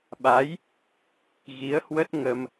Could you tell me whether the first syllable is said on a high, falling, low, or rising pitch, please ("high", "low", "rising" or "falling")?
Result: rising